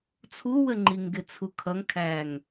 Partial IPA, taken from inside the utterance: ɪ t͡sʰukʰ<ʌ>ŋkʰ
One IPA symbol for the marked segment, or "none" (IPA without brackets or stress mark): ʌ